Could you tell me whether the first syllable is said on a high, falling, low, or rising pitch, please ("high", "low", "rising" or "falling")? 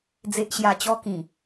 low